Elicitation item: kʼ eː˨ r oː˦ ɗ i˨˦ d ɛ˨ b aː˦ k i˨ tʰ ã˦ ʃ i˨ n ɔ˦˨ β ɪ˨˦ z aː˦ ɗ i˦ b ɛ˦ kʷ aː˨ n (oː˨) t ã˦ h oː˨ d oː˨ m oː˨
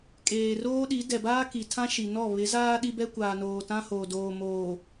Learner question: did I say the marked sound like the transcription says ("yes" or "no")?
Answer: yes